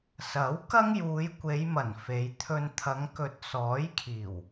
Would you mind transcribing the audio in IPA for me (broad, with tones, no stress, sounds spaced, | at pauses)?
s ɐ˨˥ w k ɐ˥ ŋ j uː˨˧ j kʷ e˨˧ j m ɐ˨˩ n f e˨˧ j t̪ʰ ɵ˧ n t̪ʰ ɐ˨˧ ŋ k ɵ˨ t̚ s ɔː˨˥ j kʰ iː˨˩ w